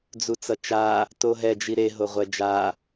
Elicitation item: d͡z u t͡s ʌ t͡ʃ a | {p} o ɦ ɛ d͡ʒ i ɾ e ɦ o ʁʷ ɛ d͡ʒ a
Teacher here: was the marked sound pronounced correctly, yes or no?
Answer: no